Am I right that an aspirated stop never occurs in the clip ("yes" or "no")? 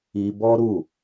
yes